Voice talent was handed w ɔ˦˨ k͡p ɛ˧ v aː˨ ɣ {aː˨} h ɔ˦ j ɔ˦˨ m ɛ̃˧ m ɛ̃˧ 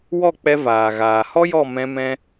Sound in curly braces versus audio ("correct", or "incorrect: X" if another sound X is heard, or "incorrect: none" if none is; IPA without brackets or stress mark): correct